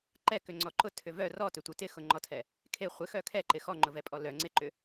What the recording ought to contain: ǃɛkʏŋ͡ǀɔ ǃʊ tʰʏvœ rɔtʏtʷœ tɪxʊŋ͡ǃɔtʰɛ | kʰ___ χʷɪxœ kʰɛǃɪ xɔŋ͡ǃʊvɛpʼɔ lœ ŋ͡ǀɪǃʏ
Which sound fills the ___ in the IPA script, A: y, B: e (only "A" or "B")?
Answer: B